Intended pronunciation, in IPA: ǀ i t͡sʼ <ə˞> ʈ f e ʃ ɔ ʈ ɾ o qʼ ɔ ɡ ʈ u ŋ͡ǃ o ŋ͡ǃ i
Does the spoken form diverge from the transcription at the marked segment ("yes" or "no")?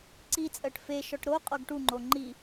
yes